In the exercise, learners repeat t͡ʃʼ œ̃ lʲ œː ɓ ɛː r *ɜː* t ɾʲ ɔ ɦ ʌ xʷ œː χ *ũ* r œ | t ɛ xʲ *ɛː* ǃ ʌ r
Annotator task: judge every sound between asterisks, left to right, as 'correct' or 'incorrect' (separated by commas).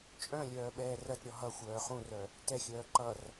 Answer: incorrect, correct, incorrect